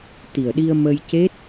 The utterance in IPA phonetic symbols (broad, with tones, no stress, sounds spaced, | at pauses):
t̪ i˨˩ ə̯ ɗ i˧ ə̯ m ə˧ j c e˦˥ t̚